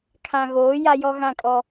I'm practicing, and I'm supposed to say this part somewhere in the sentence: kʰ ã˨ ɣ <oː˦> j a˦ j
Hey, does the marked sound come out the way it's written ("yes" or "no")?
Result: no